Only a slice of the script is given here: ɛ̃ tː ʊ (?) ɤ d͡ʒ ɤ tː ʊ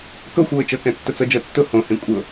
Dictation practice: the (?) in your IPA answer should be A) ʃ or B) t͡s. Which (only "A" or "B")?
B